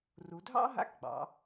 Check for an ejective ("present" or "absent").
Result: absent